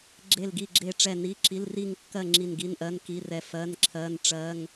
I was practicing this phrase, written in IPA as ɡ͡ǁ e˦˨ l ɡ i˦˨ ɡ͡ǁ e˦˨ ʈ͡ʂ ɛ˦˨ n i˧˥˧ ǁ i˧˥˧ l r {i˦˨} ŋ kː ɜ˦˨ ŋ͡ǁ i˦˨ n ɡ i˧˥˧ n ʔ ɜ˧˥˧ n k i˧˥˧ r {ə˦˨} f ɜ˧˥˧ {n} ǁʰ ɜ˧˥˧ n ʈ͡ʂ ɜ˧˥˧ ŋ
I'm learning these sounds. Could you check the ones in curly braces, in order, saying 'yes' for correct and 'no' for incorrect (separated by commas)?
yes, no, yes